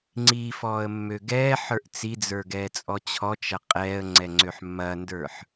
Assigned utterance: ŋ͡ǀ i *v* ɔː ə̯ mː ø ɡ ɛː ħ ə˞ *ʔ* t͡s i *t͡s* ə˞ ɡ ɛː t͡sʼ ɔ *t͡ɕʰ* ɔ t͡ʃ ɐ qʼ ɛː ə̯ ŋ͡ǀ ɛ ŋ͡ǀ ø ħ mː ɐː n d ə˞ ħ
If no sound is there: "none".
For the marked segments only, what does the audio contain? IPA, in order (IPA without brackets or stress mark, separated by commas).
f, ʔ, d͡z, t͡ɕʰ